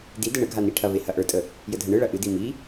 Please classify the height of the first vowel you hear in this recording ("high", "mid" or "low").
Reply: high